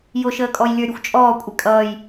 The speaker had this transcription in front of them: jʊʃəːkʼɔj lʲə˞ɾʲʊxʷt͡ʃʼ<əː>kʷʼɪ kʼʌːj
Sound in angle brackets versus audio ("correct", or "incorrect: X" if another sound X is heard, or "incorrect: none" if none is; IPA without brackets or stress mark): incorrect: ɔː